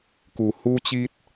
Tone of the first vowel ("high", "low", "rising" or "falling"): low